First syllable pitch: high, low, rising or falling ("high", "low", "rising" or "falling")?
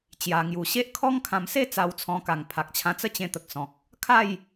low